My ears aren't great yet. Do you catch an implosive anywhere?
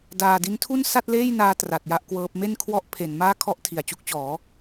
no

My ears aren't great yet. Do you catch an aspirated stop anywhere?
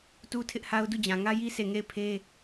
yes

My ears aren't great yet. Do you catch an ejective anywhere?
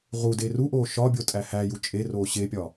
yes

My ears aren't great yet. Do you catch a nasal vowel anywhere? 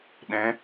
yes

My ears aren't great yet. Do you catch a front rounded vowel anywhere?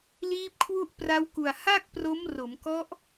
no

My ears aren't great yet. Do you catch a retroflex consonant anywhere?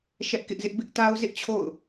no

